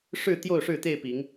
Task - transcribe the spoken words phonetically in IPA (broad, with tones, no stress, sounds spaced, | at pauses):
ʂ ɻ̩˥˨ t̪ j o˥˨ ʊ̯ ʂ ɻ̩˥˨ t̪ e˥˨ ɪ̯ p i˨˦ ŋ